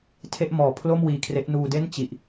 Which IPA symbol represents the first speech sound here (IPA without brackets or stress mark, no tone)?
tʰ